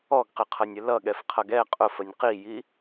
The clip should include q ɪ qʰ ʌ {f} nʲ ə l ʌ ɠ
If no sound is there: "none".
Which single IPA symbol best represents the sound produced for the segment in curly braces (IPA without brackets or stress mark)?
none